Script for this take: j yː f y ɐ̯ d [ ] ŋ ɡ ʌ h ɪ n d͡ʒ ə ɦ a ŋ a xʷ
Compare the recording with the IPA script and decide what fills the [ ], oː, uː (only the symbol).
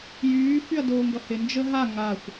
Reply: oː